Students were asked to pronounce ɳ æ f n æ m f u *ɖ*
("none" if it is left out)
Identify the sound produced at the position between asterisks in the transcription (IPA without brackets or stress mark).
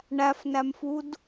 d